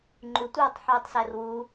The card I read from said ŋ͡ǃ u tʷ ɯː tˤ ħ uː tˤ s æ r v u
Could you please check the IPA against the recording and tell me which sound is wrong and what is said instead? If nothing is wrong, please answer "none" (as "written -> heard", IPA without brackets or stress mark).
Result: v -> w